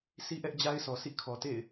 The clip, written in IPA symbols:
sʰ i˦ ʔ ɛ˦ ʔ d͡ʑ a˦ ɪ̯ s ɔ˨ s ḭ˦˨ kʰ ɔ˨ t ḛ˦˨ ɪ̯

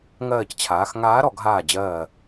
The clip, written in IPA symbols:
ŋ ɜː˧˩ c t͡ɕʰ aː˩˧ x ŋ aː˧˥ ɾ ɔ˩˧ ɡ ɦ aː˧˩ d͡ʑ ɜː˧˩

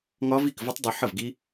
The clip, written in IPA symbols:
ŋ ɒ˦˥ v i˥˩ k v ə˦˥ tˤ dˤ u˧ ħ ə˥˩ v ɡ i˦˥

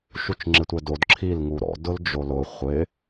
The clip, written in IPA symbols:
ʃ u t͡ʃ ŋ͡ǁ ɪ tʷ ɛ d o d ǁʰ i l ŋ u ɾ ɔ̰ d ʊ l d͡ʒ o l ʊ χʷ ɪ

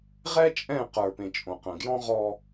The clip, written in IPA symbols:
ʁ ɛ˦ t͡ʃʼ ɛ̃ː˦˨ q ə˞˨ p ẽ˨ t͡ʃʼ õ˨ q ə̃ː˨ ɡ j ɔ̃˦ ʁ ɔ˦

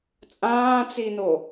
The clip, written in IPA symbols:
t͡sʼ ãː t͡s i n o

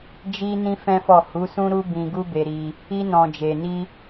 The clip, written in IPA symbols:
d͡ʒ i˧ n ĩ˧ f ɛ̃˦ f ɔ˦˨ h u˨˦ s ũ˦ ɾ u˦ b ĩ˧ ɡ u˦ b e˧ ɾ i˧ | i˧ n ɔ̃˨ d͡ʒ e˨ n i˧

